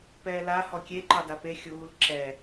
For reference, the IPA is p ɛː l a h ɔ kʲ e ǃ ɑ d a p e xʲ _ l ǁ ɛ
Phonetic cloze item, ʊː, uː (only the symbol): uː